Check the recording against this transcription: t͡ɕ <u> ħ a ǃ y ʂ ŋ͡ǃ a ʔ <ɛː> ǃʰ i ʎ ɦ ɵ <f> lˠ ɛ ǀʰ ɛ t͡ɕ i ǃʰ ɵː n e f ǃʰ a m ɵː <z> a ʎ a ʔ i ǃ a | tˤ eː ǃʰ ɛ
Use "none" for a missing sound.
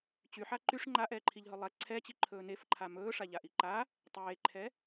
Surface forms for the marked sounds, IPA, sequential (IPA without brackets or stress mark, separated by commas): y, ɛː, none, ʂ